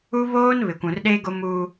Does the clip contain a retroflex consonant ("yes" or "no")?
no